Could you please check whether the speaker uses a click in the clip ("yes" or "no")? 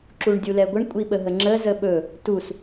yes